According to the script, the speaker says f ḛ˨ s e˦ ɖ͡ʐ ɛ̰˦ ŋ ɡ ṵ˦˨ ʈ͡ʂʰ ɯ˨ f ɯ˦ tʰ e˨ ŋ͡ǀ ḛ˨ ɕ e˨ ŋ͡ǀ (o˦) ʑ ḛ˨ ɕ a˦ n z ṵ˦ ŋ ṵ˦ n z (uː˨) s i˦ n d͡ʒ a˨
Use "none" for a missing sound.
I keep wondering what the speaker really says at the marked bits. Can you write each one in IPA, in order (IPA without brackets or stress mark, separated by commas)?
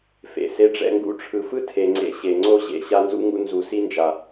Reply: o˦, u˨